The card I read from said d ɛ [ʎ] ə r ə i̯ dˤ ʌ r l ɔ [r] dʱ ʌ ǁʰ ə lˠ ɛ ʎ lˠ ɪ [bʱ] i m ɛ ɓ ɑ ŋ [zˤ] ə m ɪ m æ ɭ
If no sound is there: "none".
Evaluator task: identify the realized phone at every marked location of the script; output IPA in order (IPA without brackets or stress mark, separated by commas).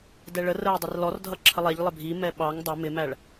ɭ, r, bʱ, dˤ